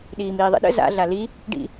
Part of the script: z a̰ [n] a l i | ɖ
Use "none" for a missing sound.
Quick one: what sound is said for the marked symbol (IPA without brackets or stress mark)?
ɮ